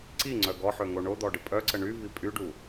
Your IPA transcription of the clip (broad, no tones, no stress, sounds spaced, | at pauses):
ǀ i ŋ͡ǀ œ ɡ ɔ ħ ø ŋ o ɳ o d̪ ɔ ɖ ə pʼ œ ǀ ə ɳ y v i pʼ y ɖ u